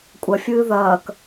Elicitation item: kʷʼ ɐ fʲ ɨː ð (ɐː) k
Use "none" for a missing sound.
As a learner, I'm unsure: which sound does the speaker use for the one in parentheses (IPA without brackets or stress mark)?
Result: ɐː